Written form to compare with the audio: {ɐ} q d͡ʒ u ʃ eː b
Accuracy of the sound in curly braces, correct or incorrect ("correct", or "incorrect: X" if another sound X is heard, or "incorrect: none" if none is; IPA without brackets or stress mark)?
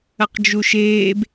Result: correct